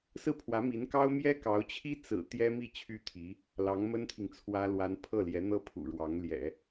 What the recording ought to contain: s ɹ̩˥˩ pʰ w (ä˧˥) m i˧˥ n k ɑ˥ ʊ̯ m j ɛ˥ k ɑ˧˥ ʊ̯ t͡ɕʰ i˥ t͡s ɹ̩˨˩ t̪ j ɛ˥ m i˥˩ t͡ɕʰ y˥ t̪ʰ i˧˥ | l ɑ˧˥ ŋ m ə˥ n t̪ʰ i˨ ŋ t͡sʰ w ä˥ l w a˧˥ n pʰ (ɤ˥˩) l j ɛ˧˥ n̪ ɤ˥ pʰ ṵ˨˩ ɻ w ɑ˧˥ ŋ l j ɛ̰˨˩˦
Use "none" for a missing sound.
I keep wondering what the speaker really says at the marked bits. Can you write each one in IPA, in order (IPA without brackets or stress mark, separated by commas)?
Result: ä˧˥, ɤ˥˩